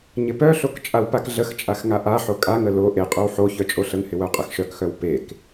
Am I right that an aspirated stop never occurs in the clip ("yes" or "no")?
yes